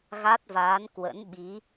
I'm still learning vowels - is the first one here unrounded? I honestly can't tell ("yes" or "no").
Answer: yes